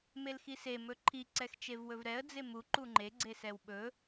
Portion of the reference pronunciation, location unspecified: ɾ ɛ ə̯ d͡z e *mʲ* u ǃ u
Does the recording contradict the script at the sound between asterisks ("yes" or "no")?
yes